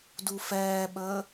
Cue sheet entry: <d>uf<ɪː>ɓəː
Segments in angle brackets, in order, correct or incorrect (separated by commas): correct, incorrect